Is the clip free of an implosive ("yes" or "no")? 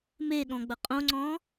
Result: no